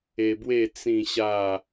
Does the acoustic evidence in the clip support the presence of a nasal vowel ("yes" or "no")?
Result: yes